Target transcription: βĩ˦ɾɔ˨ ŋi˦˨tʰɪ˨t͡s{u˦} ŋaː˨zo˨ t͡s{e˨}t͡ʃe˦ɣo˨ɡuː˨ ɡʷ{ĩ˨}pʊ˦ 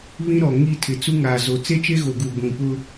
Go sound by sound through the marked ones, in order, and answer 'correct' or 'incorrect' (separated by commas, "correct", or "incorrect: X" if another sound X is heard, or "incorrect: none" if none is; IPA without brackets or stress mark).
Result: correct, incorrect: e˦, correct